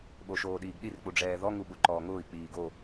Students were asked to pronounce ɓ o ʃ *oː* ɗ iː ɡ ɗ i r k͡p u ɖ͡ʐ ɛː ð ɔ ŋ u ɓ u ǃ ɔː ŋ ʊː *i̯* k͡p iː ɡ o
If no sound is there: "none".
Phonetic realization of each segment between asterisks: oː, i̯

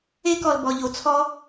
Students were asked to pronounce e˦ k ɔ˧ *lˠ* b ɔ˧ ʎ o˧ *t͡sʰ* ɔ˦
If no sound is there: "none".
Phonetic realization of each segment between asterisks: l, t͡sʰ

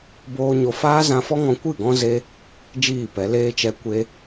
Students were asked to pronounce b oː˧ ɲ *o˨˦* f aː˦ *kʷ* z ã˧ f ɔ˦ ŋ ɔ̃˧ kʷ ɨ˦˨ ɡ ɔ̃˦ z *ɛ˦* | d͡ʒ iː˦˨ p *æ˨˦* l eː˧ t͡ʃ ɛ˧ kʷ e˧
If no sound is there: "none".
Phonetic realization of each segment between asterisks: o˧, none, e˦, ɛ˨˦

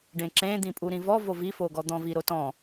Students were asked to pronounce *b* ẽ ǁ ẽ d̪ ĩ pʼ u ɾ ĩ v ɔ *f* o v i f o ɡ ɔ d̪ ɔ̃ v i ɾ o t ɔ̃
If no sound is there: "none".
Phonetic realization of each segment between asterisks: ɖ, v

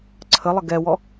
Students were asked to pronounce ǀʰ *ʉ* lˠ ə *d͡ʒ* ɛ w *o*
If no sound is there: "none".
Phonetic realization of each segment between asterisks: ə, ɡ, ɔ

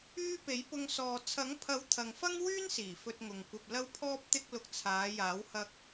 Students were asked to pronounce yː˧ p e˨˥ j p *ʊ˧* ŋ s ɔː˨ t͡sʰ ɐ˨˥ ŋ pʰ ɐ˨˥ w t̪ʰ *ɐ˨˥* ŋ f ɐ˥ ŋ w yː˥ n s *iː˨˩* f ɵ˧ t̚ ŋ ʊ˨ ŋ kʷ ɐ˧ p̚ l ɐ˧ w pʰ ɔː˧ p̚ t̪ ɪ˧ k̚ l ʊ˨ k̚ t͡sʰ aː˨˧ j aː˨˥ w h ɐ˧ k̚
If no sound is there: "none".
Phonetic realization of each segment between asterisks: ʊ˧, ɐ˨, iː˨˩

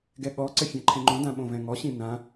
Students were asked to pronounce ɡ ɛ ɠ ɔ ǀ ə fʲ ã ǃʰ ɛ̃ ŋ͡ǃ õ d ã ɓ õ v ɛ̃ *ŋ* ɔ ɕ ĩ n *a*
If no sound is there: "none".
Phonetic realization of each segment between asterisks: ŋ, ã

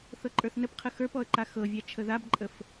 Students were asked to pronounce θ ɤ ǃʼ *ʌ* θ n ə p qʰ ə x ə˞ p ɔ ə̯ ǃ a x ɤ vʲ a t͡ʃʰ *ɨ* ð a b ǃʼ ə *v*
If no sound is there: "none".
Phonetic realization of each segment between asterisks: ə˞, ə, f

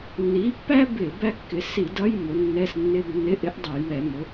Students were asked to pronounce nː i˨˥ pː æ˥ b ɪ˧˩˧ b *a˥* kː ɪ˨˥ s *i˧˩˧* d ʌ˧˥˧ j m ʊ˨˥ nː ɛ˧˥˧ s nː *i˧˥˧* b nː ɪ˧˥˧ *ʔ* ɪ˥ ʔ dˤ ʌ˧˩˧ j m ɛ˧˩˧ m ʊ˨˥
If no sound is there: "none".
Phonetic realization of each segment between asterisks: æ˥, i˧˩˧, ɪ˧˥˧, ʔ

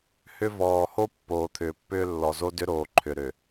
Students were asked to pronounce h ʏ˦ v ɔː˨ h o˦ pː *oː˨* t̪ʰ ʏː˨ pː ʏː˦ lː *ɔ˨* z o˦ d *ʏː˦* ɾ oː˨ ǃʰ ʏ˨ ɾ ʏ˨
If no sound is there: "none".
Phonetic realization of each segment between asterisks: oː˨, ɔ˨, ʏ˦

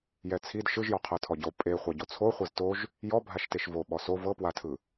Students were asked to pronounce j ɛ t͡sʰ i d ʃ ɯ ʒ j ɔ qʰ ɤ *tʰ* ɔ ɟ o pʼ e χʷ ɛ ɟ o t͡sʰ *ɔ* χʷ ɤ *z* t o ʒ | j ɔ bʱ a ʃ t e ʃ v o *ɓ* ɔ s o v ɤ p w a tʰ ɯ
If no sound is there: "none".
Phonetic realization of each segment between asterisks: tʰ, o, z, ɓ

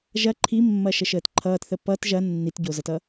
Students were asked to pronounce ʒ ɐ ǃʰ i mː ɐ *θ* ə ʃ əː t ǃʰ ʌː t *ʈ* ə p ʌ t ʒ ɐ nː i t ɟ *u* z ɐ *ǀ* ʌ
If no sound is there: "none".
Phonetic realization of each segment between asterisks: ʃ, θ, o, t

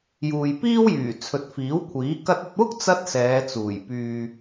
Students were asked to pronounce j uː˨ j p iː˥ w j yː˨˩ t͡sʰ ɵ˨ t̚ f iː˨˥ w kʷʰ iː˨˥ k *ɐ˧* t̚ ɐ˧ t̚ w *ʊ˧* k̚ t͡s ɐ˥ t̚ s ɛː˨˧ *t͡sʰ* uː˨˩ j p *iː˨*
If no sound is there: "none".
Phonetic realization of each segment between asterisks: ɐ˧, ʊ˥, t͡s, yː˨

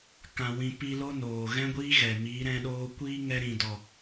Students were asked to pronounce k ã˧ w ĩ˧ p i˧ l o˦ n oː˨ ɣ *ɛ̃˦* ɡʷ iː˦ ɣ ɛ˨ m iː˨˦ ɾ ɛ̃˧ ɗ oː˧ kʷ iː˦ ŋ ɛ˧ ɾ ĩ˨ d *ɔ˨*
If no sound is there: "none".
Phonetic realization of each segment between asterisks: ɛ̃˦, ɔ˨

